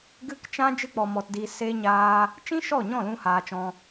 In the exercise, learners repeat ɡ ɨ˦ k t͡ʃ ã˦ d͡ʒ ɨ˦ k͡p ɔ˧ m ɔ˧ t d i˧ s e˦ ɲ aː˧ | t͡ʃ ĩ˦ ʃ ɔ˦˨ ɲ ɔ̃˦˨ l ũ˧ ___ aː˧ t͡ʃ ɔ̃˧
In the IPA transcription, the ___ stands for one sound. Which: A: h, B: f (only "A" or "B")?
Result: A